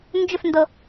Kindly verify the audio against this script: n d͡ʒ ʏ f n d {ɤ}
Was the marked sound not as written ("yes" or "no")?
no